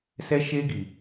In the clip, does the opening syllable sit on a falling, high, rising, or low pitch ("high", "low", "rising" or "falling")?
high